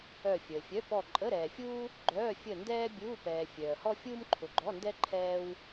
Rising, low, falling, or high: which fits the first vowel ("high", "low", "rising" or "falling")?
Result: falling